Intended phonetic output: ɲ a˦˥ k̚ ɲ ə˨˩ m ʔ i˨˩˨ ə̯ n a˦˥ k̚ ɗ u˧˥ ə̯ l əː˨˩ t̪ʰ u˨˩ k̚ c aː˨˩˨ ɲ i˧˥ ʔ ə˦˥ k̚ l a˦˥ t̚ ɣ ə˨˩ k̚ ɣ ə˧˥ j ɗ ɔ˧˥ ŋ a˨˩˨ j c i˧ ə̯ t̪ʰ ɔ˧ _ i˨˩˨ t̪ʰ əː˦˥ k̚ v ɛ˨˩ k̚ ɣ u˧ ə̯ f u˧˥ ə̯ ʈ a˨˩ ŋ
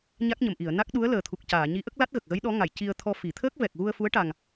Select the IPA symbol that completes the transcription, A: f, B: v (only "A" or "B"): A